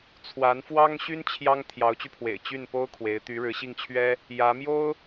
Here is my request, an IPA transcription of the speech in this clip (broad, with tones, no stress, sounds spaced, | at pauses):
t͡sʰ w a˧˥ n f w ɑ˥ ŋ ɕ y˥ n t͡ɕʰ j ɑ˥ ŋ t̪ʰ j ɑ˧˥ ʊ̯ t͡ɕ y˧ pʰ w ḛ˨˩ ɪ̯ t͡ɕ y˥˩ n p o˥ ʊ̯ kʰ w e˧˥ ɪ̯ t̪ y˧˥ ɻ ɻ̩˧˥ ɕ i˥˩ ŋ t͡ɕʰ ɥ ɛ˥ | j ä˧˥ m j o˥ ʊ̯